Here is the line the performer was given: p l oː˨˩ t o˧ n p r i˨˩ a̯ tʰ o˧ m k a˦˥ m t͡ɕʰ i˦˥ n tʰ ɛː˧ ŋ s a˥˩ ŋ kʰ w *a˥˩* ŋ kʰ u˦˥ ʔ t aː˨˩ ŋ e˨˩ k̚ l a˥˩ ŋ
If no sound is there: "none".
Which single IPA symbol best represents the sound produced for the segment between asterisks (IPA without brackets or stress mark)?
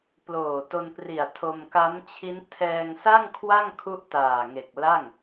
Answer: a˥˩